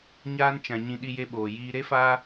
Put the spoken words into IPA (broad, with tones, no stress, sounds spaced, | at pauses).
ɲ aː˧ n t͡ʃ ã˨ ɲ ĩ˧ ɗ i˧ j e˧ ɓ oː˨ j iː˨ ɾ e˧ f aː˧